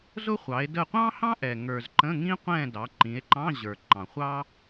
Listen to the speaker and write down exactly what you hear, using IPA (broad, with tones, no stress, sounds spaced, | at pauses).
z ʊ˥ χʷ ɑ˩˧ e̯ d ə˦˨ qʷ ɑ̃˥ h ɑ̃˥ ʔ ɛ˩ ŋ ə˞˩ z ǃ ə̃˧˥˧ ŋ ĩ˥ qʷ ɛ̃˦˨ d ɑ˩˧ ǃ ĩ˩˧ e̯ ǃ ɑ̃˧˥˧ ʑ ə˞˩ ǃ ɑ̃˩ χʷ ɑ˥